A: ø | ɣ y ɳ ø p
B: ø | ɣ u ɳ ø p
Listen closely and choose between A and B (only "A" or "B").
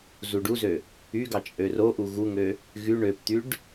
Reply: A